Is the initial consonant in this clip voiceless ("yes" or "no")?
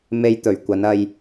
no